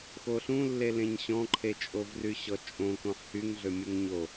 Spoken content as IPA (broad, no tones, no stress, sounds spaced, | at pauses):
x o ɬ ũ lː e l ẽ ɲ ɕ ɔ̃ ǃʰ e t͡ʃʼ o v r y ɕ ɔ t͡ʃʼ õ k õ ħ h y ŋ ɮ ø mʲ u ŋ ɲ o